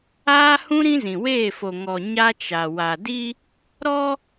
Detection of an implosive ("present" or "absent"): absent